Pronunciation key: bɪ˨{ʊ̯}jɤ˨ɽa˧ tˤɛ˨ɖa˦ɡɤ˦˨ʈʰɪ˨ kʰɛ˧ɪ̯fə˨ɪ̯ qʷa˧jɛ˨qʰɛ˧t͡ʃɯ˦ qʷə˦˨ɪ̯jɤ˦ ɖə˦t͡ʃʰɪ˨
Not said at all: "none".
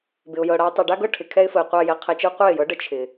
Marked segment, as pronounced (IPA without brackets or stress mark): ʊ̯